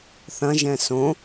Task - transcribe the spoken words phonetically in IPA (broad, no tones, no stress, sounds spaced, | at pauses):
θ ɐ̃ ʒ ɛ̃ s õ